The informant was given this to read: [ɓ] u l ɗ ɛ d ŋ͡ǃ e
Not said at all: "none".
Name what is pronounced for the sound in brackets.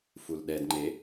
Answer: f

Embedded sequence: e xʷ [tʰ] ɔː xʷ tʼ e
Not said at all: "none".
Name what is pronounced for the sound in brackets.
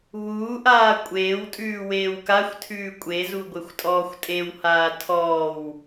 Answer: tʼ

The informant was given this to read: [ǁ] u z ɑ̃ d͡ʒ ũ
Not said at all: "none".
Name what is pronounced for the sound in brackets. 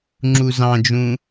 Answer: ŋ͡ǁ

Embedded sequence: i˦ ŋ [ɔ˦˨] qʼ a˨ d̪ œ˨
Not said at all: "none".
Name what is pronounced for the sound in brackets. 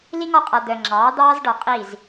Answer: ɔ˦˨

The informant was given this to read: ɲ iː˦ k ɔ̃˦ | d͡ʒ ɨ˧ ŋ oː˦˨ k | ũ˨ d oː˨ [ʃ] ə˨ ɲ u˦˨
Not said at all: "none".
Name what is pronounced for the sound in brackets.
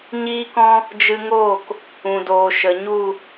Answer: ʃ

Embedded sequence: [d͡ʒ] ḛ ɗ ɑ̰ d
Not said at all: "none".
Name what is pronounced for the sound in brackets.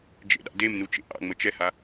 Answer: d͡ʒ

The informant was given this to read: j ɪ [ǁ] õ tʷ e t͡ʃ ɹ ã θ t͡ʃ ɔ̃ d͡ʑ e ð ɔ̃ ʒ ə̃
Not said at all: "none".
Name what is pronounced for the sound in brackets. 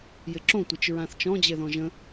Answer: ǁ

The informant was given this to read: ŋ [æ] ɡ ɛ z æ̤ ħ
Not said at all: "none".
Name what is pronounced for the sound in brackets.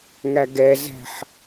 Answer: æ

